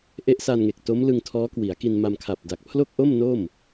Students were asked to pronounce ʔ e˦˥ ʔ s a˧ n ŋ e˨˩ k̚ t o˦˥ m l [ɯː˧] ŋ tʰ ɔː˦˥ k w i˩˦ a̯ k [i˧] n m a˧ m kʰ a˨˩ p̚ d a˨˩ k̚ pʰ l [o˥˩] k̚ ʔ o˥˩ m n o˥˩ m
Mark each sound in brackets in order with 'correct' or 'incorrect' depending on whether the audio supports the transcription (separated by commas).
incorrect, correct, correct